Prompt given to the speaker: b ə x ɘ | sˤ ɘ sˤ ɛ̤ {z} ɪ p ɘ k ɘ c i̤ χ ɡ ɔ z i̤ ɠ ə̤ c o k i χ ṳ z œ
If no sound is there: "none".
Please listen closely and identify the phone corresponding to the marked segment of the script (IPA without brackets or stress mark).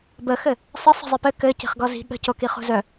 zˤ